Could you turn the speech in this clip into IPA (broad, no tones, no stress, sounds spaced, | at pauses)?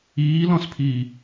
iː l ɔ̃ s pʰ iː